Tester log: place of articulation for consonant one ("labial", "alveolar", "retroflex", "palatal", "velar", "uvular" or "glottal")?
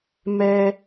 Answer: labial